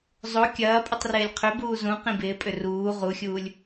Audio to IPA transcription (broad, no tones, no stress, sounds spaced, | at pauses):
zˤ o kʲ ɐː pʼ i tˤ r ɪː lʲ qʰ ʏ b uː z ũ q ĩ b ɪː pʼ ʏ r uː ʁ u xʲ uː lʲ